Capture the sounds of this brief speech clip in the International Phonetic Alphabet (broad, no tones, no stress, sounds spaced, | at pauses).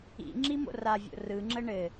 ḭ ŋ͡ǁ i m o̰ r a vʲ o̰ r ɯ ŋ͡ǁ ə ɳ ɘ